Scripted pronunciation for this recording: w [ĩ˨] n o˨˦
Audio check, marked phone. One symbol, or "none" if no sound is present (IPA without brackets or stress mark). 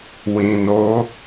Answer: ĩ˨